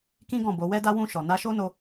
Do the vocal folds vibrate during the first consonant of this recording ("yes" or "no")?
no